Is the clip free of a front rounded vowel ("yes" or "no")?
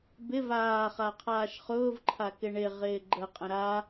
yes